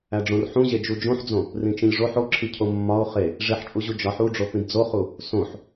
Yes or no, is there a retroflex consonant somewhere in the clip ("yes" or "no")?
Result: yes